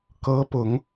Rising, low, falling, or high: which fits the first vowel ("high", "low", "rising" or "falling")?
rising